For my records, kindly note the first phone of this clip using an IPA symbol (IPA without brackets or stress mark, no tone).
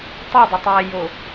tˤ